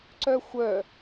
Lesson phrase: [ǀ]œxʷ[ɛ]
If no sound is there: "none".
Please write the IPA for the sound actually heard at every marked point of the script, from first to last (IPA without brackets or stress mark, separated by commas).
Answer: ǀ, œ